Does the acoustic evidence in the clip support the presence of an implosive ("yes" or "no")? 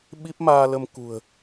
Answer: yes